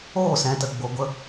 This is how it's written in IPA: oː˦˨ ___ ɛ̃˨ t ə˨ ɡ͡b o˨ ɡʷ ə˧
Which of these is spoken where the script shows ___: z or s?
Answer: s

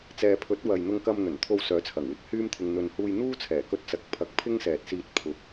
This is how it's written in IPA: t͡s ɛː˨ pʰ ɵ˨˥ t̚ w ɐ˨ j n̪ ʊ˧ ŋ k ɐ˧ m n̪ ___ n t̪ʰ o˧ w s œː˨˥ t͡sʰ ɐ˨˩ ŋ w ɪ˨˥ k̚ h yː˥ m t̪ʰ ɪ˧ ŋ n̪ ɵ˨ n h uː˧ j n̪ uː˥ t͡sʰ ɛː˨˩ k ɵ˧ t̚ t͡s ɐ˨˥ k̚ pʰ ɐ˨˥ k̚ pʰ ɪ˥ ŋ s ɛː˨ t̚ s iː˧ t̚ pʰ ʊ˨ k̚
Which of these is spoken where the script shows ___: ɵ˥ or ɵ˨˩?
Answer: ɵ˨˩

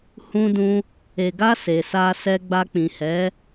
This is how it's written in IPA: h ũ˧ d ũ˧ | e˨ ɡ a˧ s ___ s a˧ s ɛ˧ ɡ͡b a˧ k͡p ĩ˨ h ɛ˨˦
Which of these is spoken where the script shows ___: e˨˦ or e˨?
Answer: e˨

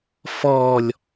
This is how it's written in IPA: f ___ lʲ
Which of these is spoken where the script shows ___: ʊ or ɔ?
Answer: ɔ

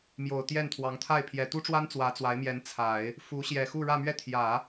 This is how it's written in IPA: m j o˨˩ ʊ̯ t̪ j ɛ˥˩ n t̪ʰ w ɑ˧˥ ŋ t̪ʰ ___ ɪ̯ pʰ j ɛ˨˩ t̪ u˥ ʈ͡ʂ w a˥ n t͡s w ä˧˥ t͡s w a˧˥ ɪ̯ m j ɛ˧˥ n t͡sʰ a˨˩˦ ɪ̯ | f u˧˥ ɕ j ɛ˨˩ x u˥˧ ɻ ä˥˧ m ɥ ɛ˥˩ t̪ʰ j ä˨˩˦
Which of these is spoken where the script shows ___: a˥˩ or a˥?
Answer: a˥˩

